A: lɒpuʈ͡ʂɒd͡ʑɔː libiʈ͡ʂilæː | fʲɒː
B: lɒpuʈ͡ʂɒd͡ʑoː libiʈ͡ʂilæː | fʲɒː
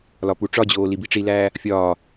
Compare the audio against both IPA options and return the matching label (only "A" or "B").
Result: B